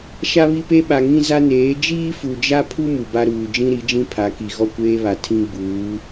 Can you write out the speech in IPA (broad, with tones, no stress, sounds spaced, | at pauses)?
ʃ a˦ β i˦ p e˦ ɓ a˨ ŋ ĩ˦ z a˦ n eː˨˦ d͡ʒ iː˦ f u˨ d͡ʒ a˦ pʰ u˦ m u˨ b a˦ ɾ uː˨ d͡ʒ ĩ˦ ɾ i˨˦ d͡ʒ ĩ˦ pʰ a˨˦ k i˨ ɣ ɔ˦˨ kʷ eː˦ β a˨ tʰ ĩ˦ ɡ͡b uː˨˦